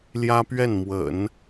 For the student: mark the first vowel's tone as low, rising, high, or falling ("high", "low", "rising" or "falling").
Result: high